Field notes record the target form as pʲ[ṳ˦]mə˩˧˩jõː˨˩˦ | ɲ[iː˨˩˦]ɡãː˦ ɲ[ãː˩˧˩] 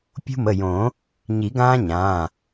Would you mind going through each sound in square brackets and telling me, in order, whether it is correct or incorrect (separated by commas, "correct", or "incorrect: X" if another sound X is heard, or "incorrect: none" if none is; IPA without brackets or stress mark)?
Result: correct, incorrect: i˨˩˦, correct